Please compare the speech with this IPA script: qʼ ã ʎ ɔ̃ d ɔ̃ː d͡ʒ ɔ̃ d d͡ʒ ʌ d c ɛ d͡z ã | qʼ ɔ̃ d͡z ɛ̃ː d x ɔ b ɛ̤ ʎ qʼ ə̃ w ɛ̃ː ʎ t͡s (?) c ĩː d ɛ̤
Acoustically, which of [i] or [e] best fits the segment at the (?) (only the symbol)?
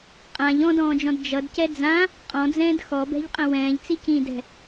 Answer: i